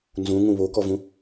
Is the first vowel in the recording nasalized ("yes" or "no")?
yes